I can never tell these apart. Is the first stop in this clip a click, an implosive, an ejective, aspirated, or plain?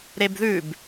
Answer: plain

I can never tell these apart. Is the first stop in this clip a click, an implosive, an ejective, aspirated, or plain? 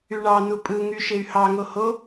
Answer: ejective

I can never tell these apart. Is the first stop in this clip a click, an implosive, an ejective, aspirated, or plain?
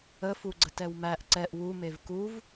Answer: click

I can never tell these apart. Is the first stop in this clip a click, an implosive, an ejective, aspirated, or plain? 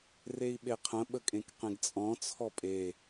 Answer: implosive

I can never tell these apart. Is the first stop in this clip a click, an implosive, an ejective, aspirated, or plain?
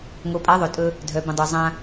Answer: ejective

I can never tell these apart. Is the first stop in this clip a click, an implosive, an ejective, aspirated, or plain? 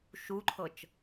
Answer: click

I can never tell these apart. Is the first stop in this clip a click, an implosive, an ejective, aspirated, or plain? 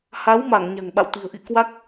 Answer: implosive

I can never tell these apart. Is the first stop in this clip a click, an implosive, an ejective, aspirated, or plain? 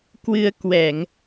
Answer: plain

